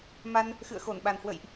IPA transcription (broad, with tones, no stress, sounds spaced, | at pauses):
m a˧ n | x ɨ̰˧˨ ə̯ x o˧˩ n ɓ a˨˩ n h w ə̰˧˨ j ʔ